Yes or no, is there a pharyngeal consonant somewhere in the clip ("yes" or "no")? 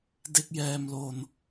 no